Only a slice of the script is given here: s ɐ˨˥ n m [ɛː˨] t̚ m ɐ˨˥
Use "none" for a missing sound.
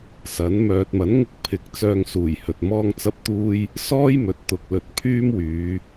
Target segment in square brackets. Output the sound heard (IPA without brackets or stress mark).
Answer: œː˨